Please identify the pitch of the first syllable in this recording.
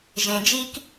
low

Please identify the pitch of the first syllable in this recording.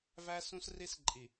high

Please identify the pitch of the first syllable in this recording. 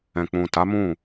low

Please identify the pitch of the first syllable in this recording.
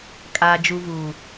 low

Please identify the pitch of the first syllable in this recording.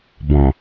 low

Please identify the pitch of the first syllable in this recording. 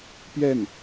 falling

